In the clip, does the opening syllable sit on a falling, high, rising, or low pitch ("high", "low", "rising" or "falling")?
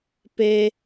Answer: high